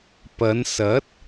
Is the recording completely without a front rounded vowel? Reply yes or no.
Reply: yes